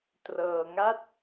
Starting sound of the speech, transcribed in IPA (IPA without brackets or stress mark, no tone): t